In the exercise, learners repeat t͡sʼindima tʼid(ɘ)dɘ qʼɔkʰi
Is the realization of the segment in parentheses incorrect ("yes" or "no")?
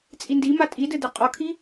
no